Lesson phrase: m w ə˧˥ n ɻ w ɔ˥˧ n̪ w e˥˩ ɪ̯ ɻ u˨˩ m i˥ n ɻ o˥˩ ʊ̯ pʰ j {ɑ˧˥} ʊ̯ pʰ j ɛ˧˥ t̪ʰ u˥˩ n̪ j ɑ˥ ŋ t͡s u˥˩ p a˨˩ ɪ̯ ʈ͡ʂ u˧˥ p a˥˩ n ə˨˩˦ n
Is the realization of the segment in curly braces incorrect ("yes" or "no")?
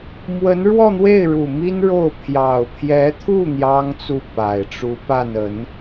yes